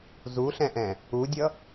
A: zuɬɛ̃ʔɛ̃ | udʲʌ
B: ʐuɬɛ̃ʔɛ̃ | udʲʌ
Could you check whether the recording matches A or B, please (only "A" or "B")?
A